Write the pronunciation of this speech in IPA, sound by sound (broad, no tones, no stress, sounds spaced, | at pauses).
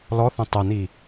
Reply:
l ɔ θ ə̃ tˤ ə n i